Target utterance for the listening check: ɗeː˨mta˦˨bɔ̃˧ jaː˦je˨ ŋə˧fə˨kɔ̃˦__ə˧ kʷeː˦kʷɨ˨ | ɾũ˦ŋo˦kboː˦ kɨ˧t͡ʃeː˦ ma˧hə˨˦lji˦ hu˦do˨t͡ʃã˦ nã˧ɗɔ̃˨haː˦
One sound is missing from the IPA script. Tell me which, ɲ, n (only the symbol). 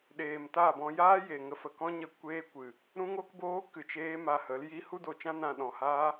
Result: ɲ